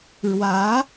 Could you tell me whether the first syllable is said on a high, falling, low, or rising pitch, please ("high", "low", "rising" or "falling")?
rising